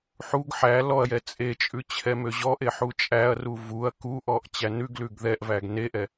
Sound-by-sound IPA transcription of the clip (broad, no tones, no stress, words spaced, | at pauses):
ħuɡ ħæ lɔɐ̯jɛ t͡sʼet͡ʃʼʉ t͡ɕʰɛmøʑɔʔe ħut͡ʃʼæɐ̯ru vuɐ̯ kuʔɔʔ t͡ɕænʉɡlʉɡ ðɛʔvæɡ neʔɛ